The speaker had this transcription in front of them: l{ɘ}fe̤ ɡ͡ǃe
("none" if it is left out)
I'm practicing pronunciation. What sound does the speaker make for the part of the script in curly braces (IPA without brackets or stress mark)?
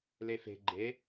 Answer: e